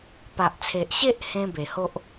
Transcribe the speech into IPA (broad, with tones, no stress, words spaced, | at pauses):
pa˨ʔt͡sʰe˨ʔɕe˦ʔhẽ˧ be˨˩ho˦ʔ